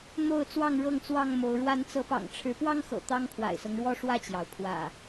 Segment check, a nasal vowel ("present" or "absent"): absent